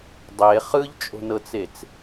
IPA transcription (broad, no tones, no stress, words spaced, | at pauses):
dˤe χɯʎt͡ʃʼo̤nɤt͡set͡s